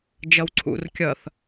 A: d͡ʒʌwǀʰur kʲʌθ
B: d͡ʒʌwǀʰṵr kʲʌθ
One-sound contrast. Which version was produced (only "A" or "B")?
B